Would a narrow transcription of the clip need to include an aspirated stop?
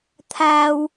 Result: yes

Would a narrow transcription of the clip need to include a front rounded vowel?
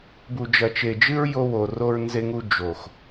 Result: no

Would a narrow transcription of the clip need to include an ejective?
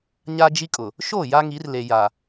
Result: yes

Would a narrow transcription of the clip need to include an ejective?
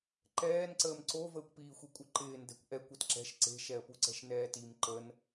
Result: yes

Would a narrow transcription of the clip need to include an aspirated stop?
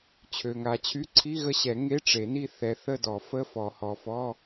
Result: yes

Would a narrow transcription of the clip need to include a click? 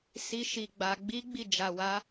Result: no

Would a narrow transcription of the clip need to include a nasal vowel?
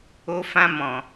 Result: yes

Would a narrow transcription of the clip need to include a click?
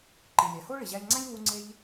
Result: yes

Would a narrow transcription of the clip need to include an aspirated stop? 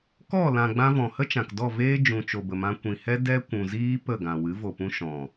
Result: no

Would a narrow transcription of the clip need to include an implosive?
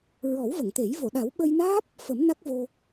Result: yes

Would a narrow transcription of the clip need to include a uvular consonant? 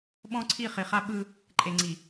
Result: yes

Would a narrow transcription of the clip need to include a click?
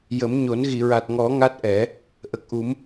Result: no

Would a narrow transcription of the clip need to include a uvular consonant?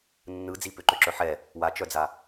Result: no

